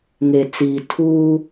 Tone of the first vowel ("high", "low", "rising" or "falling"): low